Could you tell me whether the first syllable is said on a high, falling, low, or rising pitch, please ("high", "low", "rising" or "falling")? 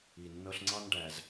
low